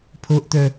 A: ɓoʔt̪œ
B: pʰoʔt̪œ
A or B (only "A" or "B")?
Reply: B